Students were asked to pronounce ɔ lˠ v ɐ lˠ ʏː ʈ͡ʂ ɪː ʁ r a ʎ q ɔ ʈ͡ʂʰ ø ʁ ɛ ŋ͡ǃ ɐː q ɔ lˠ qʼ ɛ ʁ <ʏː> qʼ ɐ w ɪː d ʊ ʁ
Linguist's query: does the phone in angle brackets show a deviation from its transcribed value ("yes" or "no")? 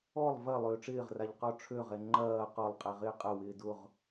yes